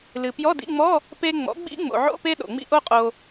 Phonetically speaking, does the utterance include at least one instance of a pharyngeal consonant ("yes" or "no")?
yes